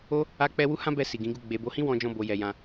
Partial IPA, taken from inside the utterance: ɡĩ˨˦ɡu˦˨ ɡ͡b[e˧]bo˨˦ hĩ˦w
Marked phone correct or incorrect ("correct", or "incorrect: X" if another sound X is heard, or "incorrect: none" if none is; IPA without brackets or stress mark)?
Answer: incorrect: e˨